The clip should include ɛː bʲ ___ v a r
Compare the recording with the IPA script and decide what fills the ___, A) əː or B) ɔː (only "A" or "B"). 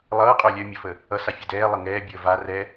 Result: A